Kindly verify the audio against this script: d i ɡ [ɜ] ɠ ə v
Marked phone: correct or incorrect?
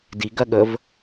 correct